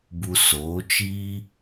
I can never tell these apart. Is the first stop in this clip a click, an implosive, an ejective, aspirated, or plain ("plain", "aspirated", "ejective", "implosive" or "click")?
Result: plain